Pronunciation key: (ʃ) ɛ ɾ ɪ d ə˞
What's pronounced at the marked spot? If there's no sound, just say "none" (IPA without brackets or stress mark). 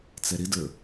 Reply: t͡s